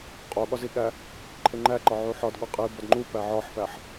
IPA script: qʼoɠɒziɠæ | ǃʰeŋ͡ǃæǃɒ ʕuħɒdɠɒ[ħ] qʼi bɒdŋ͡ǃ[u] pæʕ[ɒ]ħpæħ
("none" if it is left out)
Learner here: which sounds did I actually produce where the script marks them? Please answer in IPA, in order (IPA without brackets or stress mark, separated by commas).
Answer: none, u, ɒ